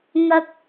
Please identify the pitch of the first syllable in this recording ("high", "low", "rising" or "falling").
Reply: high